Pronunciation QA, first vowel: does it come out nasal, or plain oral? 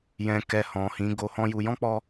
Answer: nasal